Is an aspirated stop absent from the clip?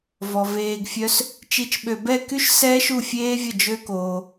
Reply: yes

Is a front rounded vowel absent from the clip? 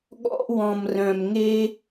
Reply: no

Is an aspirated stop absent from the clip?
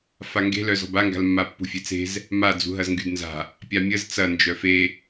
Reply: yes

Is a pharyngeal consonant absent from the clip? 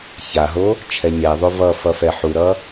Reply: no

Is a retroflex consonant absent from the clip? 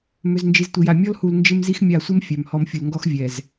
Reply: yes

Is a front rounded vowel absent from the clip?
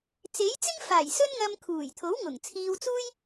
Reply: yes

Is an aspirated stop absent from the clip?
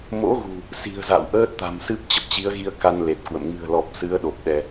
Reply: yes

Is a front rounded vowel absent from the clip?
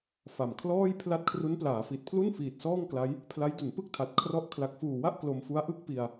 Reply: yes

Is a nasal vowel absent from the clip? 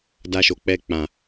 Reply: no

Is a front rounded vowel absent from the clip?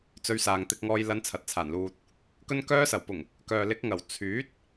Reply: no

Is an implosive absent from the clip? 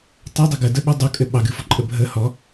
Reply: no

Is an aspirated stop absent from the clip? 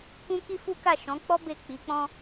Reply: yes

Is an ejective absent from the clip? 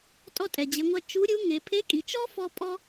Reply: no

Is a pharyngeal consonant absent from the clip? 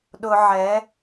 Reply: no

